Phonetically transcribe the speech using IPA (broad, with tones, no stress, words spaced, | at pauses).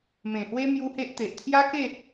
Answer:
mẽ˨˩hwe˦ mju˦he˦ʔt̪e˨ʔ t̪ʰja˦ke˥˧